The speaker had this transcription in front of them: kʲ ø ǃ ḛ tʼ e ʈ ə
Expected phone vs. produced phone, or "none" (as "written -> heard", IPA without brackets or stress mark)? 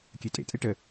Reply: ǃ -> tʼ